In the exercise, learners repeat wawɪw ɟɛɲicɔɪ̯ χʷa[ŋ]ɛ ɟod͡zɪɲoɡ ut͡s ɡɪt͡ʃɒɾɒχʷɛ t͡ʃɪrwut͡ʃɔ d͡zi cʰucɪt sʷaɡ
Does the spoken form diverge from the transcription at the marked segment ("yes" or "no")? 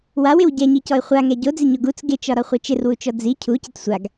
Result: no